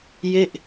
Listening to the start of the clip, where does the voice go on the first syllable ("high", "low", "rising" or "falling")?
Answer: falling